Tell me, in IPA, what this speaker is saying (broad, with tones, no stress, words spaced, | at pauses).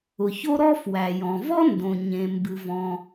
ʊ˩ço˥ɾɔ˥ fwæ˩jɔ̃˩vɔ˥ ndõ˩ɲẽ˩mbɨ˩vɔ̃˩